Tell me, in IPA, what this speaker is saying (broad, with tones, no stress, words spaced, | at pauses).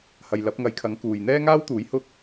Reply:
hɐ˨jlɐ˨˥p̚ŋɐ˨˧j kʰɐ˨˥ŋkuː˨j n̪ɛː˥ŋaː˥wt̪uː˨˥j hʊ˥k̚